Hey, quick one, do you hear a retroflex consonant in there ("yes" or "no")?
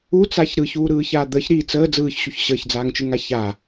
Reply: no